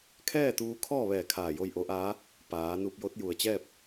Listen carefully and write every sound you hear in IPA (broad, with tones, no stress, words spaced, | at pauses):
kʰɛː˥˨t̪uː˧kʰɔː˥˨ʋɛː˧˩ kʰaː˧˩jo˥˨jʔo˧˥ʔaː˧˥ | paː˩˧ nu˧p̚jo˧˥t̚ ju˩ə̯t͡ɕɛː˥˨p̚